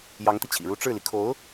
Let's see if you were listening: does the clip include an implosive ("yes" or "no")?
no